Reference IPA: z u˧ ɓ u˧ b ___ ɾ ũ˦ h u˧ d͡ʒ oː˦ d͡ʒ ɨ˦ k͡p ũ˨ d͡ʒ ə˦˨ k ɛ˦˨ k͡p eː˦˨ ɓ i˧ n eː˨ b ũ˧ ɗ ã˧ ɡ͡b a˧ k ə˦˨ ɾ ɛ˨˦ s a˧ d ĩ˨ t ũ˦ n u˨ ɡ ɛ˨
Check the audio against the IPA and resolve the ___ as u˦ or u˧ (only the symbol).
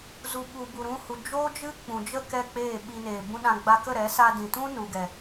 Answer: u˧